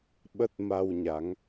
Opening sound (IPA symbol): ɓ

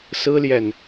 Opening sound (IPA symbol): s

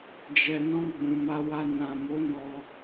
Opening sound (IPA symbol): d͡ʒ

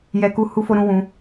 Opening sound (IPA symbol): j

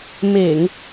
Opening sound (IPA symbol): m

